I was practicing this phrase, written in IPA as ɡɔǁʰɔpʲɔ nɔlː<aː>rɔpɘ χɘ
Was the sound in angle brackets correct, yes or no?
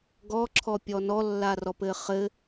no